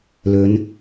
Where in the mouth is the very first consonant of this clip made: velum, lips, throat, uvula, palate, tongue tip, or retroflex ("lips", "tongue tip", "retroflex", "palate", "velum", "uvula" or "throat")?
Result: tongue tip